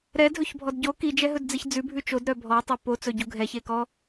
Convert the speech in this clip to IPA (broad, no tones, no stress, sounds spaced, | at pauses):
ɾ ɛ dʱ ɵ ç bʱ ɔ d ɟ o k i d͡ʒ ɛ ɦ ɵ d d͡z i ç d͡z ʉ bʱ ʉ t͡ʃ o d ɾ œ bʱ ɔ tˤ ɵ p o t͡s ɵ ɟ u ɡʱ ɛ ç e k ɔ